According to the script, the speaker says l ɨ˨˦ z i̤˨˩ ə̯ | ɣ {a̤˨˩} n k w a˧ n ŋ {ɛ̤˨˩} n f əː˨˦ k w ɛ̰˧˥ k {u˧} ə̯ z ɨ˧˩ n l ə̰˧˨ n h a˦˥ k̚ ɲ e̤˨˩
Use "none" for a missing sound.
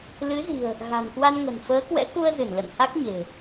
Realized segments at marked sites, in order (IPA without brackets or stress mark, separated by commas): a̤˨˩, ə̤˨˩, u˧